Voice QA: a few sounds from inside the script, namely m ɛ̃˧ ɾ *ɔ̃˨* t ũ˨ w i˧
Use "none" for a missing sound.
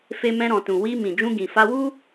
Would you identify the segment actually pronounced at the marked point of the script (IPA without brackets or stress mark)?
ɔ̃˨